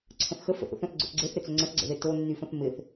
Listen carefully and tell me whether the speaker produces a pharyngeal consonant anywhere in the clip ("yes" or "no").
no